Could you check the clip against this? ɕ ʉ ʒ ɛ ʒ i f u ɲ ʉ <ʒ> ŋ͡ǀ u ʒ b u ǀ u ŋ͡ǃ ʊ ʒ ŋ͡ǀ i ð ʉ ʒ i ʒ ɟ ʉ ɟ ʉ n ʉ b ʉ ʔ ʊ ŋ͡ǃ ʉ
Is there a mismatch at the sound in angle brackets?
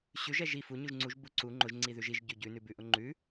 no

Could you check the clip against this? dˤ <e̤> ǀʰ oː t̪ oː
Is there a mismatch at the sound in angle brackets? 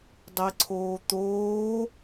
yes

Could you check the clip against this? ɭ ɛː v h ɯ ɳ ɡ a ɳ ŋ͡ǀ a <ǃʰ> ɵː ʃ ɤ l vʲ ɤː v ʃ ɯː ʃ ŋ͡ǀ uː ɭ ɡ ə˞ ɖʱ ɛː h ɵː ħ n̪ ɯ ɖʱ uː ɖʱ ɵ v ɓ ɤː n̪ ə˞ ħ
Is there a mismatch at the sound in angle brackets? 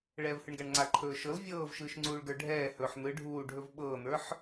no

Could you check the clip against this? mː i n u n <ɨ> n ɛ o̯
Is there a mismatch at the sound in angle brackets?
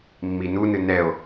no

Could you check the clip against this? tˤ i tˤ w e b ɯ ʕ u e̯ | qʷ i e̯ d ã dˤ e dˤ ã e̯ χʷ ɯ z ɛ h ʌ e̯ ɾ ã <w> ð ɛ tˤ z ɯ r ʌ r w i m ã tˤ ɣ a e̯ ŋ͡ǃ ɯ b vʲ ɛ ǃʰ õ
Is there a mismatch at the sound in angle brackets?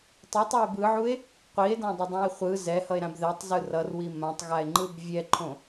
yes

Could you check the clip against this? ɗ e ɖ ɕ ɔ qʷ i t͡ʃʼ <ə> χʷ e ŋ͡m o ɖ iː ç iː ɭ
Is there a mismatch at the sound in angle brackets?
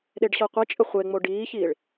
no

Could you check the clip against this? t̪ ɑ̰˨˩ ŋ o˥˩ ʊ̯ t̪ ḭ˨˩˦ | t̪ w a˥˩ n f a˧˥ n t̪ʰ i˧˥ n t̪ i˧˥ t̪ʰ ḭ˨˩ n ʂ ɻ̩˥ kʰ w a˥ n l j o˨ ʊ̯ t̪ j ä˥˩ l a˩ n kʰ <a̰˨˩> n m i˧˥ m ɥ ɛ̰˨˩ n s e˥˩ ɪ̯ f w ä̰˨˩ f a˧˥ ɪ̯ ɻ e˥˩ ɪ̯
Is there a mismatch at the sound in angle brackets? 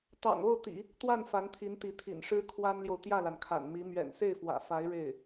no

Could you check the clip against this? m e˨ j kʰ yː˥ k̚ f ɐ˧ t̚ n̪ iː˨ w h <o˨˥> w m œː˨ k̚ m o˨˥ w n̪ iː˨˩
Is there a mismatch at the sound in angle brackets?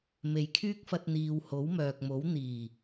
no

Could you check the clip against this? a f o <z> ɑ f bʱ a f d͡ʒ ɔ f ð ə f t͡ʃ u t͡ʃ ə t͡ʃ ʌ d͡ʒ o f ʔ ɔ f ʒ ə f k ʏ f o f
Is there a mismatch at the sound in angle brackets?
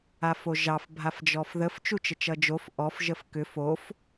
yes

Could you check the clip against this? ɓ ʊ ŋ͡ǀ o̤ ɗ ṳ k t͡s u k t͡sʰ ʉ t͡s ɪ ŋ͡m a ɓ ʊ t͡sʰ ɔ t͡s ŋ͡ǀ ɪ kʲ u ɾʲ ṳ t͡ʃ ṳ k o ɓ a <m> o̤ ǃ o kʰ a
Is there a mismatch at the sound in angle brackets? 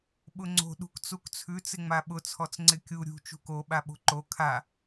yes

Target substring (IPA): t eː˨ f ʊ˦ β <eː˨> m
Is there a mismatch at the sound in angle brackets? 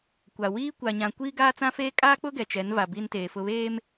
yes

